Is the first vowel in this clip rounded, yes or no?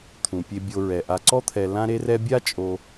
yes